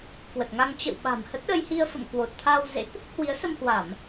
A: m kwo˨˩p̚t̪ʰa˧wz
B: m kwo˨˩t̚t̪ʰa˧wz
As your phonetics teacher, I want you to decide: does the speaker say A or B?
B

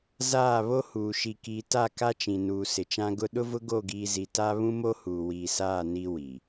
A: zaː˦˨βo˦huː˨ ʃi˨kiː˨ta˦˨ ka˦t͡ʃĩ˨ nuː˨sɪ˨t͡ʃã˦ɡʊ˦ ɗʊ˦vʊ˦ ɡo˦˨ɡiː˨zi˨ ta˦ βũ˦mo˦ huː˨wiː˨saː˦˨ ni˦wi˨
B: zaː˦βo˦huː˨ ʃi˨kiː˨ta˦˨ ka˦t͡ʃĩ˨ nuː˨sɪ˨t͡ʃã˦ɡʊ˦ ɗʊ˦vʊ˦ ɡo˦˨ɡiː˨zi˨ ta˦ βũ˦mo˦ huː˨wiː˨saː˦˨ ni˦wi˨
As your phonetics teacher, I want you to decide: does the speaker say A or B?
A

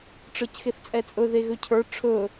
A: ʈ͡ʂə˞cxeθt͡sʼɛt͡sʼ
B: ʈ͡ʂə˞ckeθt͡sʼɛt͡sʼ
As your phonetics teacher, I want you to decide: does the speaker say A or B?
A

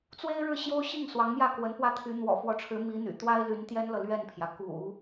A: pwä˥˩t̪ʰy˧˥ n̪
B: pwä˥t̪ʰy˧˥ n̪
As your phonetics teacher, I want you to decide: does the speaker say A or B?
A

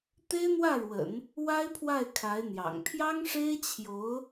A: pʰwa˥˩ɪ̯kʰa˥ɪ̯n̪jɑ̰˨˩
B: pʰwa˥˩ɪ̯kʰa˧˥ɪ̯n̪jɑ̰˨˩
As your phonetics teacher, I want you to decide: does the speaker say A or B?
B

